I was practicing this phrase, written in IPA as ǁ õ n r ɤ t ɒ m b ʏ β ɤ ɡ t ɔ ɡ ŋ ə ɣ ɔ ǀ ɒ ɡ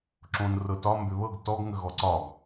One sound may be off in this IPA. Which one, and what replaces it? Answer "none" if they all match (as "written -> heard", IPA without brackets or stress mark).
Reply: none